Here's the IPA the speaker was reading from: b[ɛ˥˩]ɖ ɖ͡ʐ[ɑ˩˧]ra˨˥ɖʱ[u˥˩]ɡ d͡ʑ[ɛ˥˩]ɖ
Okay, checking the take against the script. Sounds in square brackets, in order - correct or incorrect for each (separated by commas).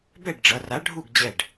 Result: correct, incorrect, correct, correct